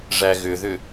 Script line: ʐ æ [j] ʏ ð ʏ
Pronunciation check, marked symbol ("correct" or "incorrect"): incorrect